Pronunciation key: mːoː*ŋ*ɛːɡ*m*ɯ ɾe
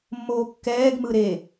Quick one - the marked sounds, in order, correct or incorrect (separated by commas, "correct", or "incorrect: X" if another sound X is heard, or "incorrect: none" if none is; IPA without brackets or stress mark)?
incorrect: kː, correct